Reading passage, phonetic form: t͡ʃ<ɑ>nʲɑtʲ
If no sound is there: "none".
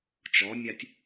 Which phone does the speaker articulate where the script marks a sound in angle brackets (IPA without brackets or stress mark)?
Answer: ɔ